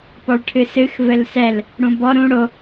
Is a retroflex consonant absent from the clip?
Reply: no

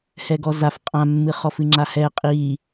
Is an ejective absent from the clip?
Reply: no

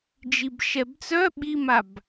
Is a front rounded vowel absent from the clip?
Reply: no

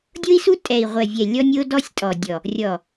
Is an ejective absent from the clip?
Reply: no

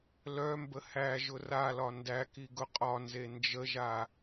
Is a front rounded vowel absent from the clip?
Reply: no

